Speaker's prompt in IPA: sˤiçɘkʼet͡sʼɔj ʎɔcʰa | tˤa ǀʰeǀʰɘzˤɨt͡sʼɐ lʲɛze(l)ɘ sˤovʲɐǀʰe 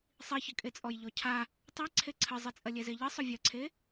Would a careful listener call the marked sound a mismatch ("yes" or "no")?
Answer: yes